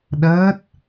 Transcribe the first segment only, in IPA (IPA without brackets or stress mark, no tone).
ɗ